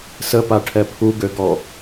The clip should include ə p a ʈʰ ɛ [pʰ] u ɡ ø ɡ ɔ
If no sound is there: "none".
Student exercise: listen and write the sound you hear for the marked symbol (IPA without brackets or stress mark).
pʰ